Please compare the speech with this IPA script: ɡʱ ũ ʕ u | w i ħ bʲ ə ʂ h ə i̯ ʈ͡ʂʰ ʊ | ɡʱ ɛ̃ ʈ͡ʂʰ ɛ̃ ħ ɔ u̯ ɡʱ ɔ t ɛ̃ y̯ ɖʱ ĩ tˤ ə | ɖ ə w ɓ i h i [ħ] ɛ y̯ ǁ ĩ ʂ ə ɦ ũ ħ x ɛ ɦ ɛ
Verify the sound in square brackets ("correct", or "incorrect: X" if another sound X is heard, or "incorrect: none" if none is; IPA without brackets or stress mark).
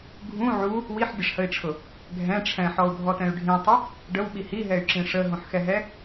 incorrect: ɦ